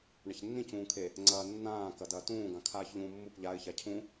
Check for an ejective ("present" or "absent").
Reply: absent